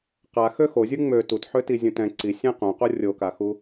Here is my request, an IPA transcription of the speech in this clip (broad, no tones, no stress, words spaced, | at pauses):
qaxø xozʲu ŋ͡mø tut ħøtizʲũtɛ̃ ǀisʲɛ̃ qũqo rʲokaxu